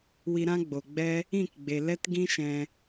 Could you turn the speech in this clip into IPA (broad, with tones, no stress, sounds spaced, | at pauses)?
w i˧ ɾ ã˦ ɡ͡b o˨ ɡ͡b ɛ˦ | ĩ˦˨ k ɡ͡b e˨ l ɛ˦ t ɡ ĩ˦ ʃ ɛ̃˧